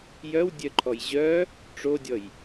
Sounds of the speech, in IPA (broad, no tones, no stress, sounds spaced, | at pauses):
j œ w dʲ œ ǃʰ ɔ j ʑ œ | ʈ͡ʂ o dʲ ɔ j